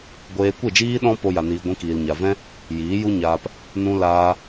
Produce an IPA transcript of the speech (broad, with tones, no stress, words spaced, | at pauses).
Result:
ɡʷeː˧kʷe˦˨d͡ʒiː˦ ɗɔ̃˦ po˦ja˧niː˧ ɡʷĩ˧kiː˨lɲa˨vɛ̃˦ | jiː˨˦ju˦ɲaː˧p | nũ˧laː˧